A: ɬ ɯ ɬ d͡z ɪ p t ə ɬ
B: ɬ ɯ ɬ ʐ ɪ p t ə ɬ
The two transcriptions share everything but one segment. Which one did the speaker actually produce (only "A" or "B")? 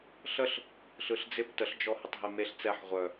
A